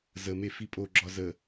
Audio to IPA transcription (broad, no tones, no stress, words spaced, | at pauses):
zəme fipʼoɡ͡ǁɒ zə